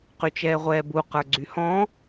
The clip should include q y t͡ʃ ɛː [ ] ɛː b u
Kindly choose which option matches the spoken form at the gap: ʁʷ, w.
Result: ʁʷ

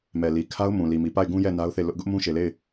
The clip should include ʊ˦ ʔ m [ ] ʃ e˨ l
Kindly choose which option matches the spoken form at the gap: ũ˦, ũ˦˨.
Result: ũ˦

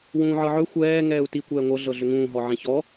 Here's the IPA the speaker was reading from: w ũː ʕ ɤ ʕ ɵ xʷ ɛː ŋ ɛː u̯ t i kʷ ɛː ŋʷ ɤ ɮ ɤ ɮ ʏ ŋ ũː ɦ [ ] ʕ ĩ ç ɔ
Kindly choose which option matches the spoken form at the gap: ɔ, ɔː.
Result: ɔ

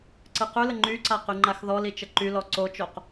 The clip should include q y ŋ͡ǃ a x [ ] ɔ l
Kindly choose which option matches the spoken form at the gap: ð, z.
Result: ð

